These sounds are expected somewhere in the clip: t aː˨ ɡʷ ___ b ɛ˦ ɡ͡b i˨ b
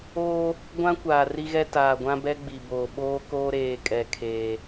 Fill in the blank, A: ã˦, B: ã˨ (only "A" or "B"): A